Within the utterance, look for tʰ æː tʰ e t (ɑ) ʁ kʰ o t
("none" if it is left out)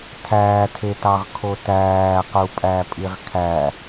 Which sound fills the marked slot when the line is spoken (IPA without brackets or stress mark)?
ɑ